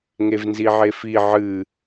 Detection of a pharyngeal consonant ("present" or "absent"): present